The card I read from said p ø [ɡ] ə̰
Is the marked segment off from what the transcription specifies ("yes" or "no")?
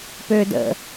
yes